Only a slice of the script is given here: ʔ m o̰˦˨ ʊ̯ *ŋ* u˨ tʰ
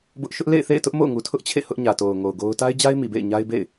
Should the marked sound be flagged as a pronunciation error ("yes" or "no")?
no